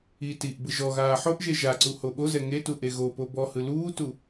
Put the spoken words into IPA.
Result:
i t i ʔ b ɯ ʒ ɔ ɣ aː ħ o ʔ ʒ e ʒ a ǀ u h o ɓ o z ɛ ŋ e t u ʔ e ɣ o p o b ɔ h ɯ l uː t u

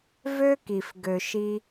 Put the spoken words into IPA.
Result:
v ø˦ k i˨ f ɡ ø˨ ʃ i˧

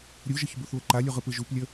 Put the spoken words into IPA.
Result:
ɾʲ u ʒ ə ç b u θ β ə ǃ a lʲ u ʁ ɯ p ɯ ʒ u p lʲ ə

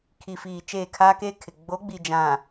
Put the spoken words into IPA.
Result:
kʰ i˨ f iː˨ t͡ʃ eː˦˨ kʰ aː˦ k eː˦ kʰ ɪ˨ ɡ͡b o˨˦ ɡ͡b i˨ d͡ʒ ã˨

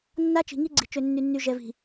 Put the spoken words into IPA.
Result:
nː a˦ t͡ʃ i̤˨ ŋ i˦ ɡ͡ǀ i̤˨ t͡ʃ ø˨ nː y˨ nː y˨ ʒ ɛ˨ v i̤˨

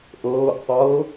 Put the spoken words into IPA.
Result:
ʔ ɤː ʔ sˤ ɤː

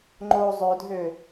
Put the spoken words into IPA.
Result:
ŋ͡ǃ o zˤ ø dʱ ø

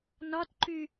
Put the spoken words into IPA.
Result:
n ɒ t ǃ y

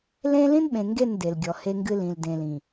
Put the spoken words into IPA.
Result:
l ẽ˦ l ĩ˦ n ɓ ẽ˨ ŋ ɡ e˦˨ n d e˨ l ɡʲ ɔ˨ h e˦ ŋ ɡ ɨ˦ l ĩ˨ l d ẽ˨ l ĩ˨

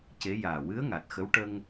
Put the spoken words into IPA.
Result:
c e˧˥ j aː˨˩ w ɨ˧˥ ə̯ ŋ a˨˩ t̚ x ə˧˥ w ʈ ə˧ ŋ

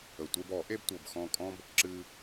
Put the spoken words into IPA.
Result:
ə˨˩ tʷ e˦ b ɔ˨˩˦ ʔ e˦ b tʷ ɤ˨˩ b x ɔ̃˦˨ kʼ ɔ̃˦ b | ǁ ɨ˦

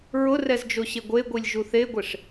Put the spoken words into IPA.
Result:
ɹ ʊ r ɛ z d͡ʒ o ɕ e ɡʷ e ɡʷ i lʲ ʒ u θ e ɡʷ e ʂ

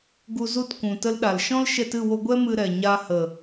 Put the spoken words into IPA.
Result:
ɡ u˧ z u˦˨ t kʷ ũ˨ t ə˧ l ɗ a˨ l ʃ ɔ̃˦ l ʃ ɛ˧ t ɨ˦˨ w o˧ ɡʷ ɛ˦ m ɨ˧ ɾ ɛ˨ ɲ a˧ h ə˨

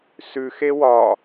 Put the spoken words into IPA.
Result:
s ʉ x e w ɒ

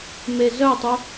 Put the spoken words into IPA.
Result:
m e z œ tˤ u

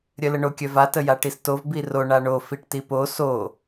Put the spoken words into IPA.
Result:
ɾʲ œ l ə ɳ o kʲ œ v a t ə j a ʈ i s t o v b i r o ɳ a ɳ o f i ʈ t i p o s o

